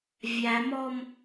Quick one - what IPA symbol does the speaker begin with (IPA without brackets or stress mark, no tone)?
vʲ